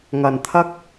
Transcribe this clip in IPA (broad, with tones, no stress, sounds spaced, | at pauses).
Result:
ŋ ɐ˨˩ n t̪ʰ ɐ˥ k̚